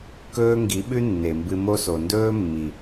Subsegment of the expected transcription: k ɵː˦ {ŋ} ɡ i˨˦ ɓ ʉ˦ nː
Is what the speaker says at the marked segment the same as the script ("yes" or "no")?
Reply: yes